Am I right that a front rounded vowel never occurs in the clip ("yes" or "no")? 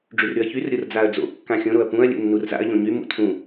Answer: no